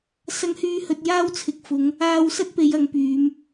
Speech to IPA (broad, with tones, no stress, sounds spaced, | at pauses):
s ɐ˨˧ ŋ h yː˨˧ h ɵ˨ t̚ j aː˧ w t͡sʰ ɪ˨ k̚ f ʊ˨˧ ŋ | aː˧ w s ɐ˥ t̚ p e˨˧ j ɐ˨˧ ŋ p yː˨˧ m